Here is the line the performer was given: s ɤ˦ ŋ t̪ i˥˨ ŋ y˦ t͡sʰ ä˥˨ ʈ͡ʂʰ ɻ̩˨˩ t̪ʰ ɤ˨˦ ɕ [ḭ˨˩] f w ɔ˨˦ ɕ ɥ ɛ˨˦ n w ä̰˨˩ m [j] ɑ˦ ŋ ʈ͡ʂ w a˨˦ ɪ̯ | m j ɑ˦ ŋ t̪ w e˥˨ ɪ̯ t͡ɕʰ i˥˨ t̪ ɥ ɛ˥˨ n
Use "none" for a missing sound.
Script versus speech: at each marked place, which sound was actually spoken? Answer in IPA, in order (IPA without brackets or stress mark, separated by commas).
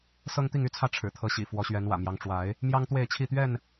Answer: ḭ˨˩, j